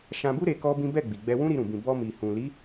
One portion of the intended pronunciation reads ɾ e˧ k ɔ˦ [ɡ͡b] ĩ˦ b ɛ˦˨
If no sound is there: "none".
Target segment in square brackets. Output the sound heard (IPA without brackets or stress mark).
b